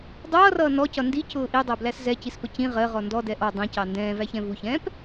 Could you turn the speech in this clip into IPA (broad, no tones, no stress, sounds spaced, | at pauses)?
dˤ ʌː r ʌː n ɔ c ʌ n d i c ʊː ʔ i dˤ æ b l æ s z ɛ c i s p ə c ĩ ʁ ɜ ʁ ɔ n d ɔ d ɛ ʔ ɔ dˤ ĩ c ɑ n d ɛ̃ː v æ ç ɛ̃ v u ç ɛ̃ː p